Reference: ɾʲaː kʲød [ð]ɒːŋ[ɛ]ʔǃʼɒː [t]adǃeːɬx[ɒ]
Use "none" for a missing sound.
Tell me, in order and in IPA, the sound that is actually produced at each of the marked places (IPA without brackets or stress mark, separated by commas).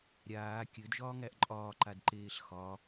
ʒ, æ, ǃ, ɒ